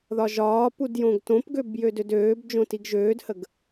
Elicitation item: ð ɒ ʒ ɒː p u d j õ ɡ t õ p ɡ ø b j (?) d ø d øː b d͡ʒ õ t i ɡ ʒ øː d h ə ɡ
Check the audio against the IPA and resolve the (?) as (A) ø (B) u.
A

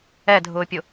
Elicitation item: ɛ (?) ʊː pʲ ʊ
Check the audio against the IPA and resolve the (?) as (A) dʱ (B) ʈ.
A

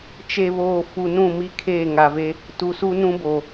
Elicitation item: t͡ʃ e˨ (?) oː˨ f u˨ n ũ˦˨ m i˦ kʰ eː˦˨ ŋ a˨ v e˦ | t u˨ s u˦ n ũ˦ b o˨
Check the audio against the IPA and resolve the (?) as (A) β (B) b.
A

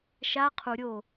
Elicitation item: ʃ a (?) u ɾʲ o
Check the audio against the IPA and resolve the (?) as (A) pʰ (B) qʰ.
B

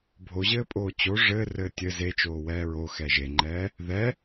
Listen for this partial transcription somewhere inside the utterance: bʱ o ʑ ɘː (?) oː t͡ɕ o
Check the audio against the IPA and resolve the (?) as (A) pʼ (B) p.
A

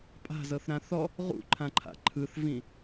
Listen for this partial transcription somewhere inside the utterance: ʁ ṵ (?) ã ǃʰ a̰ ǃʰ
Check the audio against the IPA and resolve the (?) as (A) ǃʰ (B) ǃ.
A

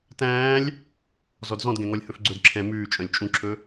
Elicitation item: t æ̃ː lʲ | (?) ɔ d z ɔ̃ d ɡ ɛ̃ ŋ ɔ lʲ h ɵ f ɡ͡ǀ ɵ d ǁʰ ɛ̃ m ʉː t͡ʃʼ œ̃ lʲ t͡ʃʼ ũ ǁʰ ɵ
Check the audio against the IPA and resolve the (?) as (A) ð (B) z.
B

